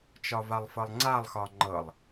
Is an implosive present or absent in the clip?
absent